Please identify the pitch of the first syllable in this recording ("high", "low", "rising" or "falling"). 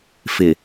low